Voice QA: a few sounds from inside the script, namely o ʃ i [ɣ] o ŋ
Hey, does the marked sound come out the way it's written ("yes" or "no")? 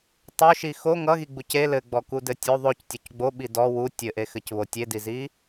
no